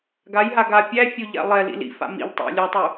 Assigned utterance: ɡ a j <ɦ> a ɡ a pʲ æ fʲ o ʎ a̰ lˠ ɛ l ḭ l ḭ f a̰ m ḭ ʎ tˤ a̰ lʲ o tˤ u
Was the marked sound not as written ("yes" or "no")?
no